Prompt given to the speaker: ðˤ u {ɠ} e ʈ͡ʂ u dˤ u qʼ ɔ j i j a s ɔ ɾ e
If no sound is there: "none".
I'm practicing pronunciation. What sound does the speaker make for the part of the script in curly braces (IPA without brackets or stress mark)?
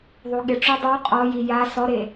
ɠ